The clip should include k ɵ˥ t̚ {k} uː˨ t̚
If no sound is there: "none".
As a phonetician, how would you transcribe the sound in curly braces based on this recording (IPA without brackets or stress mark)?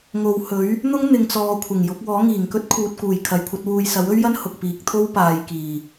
kʰ